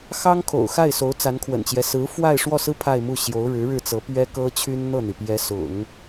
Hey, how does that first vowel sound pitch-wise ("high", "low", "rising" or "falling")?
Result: high